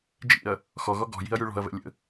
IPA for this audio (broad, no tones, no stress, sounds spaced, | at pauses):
d͡ʒ ḭ ɐ̯ | x ɔ ɣ ɔ ɡ ɔ̤ j i̤ ɐ̯ j y ɭ ɔ̤ ɐ̯ v ɛ̰ lʲ ə̰